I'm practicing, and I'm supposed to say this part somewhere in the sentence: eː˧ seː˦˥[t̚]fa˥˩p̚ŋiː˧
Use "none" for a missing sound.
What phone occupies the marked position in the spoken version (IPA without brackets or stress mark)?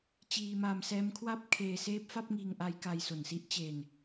p̚